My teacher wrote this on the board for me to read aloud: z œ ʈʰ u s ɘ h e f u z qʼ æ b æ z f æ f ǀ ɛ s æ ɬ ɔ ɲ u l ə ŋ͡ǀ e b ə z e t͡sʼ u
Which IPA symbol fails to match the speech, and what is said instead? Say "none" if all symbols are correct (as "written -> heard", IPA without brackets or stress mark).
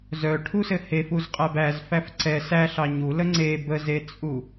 ɔ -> ɑ